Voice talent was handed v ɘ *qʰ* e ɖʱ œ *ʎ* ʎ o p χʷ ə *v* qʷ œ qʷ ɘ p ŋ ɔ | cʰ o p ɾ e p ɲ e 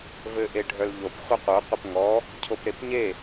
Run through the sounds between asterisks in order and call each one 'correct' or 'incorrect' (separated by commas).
incorrect, incorrect, incorrect